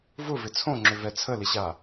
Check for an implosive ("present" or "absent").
absent